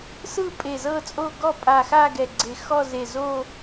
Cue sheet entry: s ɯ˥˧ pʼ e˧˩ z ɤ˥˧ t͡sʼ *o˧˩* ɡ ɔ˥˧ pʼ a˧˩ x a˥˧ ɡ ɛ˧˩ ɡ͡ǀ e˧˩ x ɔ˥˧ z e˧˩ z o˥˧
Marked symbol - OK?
no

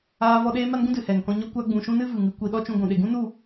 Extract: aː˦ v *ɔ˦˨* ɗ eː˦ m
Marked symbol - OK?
no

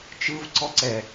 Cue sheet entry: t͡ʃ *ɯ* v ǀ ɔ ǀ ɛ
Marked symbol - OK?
yes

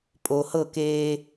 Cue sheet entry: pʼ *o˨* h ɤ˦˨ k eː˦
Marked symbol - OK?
yes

